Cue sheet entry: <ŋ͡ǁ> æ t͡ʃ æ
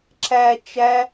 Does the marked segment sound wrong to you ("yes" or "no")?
yes